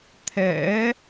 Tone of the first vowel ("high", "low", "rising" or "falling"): rising